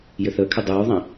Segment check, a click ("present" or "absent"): absent